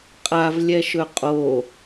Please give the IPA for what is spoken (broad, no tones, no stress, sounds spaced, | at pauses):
qʼ a v lʲ ɛ ʃ ɵ qʼ o